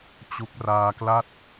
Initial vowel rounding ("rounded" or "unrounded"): rounded